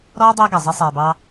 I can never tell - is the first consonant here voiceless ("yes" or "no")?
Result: no